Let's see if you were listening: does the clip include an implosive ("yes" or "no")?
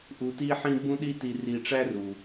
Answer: yes